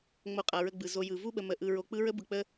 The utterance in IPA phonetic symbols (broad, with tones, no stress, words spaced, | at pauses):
ŋ͡mo˨qʼa˩ɹə˨ ɡ͡bɯ˩ zo˨jɯ˩ vu˥ɓə˨ mə˨ ʔɯ˨ɹo˨ k͡pɯ˥ ɹə˥ bɯ˨k͡pə˦